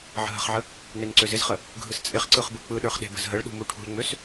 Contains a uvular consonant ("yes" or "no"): yes